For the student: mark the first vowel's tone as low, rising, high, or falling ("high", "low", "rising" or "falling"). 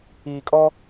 low